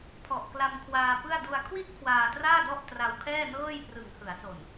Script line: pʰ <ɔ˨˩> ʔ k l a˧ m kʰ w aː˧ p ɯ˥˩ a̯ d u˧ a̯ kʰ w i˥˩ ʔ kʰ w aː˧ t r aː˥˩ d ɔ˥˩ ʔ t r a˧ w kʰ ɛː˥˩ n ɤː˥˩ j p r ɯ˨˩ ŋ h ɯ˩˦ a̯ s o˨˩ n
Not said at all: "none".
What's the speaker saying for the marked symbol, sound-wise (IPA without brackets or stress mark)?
ɔ˨˩